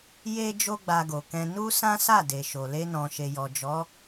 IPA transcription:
j e˦ d͡ʒ o˦ ɡ͡b a˧ ɡ o˨ k ɛ̃˧ n u˦ s ã˦ s a˦˨ d e˨ ʃ o˨ l e˧ n ɔ̃˨ ʃ e˨ j ɔ˨ d͡ʒ ɔ˨˦

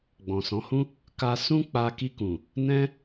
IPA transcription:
ɡ͡b ɔ̃˨ s ɔ̃˨˦ h ũ˦ | k a˧ s ũ˦ k͡p a˧ k i˧ k ũ˨ | n ɛ̃˦

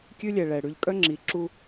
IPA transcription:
kʲ ʉ˦ lʲ ɛ˨ ɭ ɛ˨ ɽ ʉ˨ ʎ kʼ œ˦ ŋ͡ǁ i˨ ǁ u˦

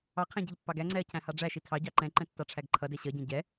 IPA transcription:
ɑ qʰ æ̃ ɟ ʌ ʎ pː ɑ ɡ æ ŋ͡ǀ ɛ ɐ̯ cʰ æ̃ h ɑ ɖ͡ʐ æ ʃ i tʰ ɑ ɟ ɑ ǃ ɛ̃ ǃ ɛ̃ tː ɑ ʈ͡ʂʰ æ ɡ ǃʰ ʌ d ɛ ɕ ʌ ɟ ɛ̃ ɟ ɛ

